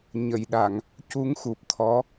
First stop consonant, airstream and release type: implosive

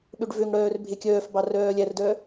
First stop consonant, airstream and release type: implosive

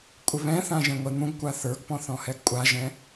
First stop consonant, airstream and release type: ejective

